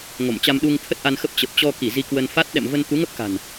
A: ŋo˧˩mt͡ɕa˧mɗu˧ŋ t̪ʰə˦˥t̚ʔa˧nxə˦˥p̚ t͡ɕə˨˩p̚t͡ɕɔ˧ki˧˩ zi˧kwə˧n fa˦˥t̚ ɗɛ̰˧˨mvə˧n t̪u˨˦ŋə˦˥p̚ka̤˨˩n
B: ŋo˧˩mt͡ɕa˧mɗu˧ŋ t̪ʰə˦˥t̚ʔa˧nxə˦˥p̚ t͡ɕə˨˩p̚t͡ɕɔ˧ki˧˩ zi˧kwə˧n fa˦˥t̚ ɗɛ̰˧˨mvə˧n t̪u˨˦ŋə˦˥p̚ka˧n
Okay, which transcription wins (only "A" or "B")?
A